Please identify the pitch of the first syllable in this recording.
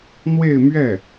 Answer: falling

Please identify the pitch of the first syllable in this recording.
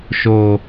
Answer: low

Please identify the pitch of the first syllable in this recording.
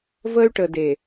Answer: high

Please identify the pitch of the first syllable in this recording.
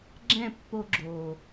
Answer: falling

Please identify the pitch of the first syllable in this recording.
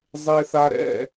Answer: high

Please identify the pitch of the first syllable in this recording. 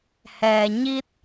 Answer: low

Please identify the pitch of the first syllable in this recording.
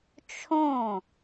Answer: falling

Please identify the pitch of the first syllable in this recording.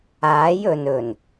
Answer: rising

